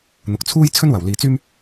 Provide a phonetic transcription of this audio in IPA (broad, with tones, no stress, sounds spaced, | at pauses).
n̪ ʊ˨ k̚ t͡sʰ uː˥ j t͡sʰ ɵ˥ n w ɐ˨˩ w l iː˨ t͡s yː˥ m